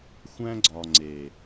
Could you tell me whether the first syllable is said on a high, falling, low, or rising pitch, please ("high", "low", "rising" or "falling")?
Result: high